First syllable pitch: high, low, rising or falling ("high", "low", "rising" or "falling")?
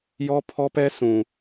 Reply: high